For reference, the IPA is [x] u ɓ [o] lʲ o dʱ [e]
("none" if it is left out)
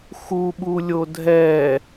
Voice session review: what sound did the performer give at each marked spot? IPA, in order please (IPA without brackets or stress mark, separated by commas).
x, u, ɛ